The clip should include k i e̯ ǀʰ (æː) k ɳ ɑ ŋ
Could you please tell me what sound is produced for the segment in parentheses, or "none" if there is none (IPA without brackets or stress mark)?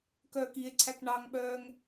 æ